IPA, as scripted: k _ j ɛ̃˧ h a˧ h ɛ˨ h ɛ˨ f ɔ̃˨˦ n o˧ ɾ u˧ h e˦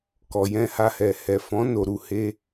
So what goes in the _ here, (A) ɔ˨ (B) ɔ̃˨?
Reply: A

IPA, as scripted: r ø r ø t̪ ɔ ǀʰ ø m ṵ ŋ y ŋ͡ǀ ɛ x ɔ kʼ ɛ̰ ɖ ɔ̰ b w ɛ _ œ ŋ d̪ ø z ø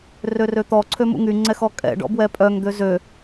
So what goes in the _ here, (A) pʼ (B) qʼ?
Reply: A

